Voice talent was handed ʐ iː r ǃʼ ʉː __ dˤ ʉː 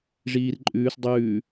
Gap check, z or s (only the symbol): s